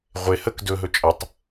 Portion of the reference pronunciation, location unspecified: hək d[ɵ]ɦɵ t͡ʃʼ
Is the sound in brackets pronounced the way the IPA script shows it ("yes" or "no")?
yes